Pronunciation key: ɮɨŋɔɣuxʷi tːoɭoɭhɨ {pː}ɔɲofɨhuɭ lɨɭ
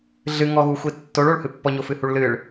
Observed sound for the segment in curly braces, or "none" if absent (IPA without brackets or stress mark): pː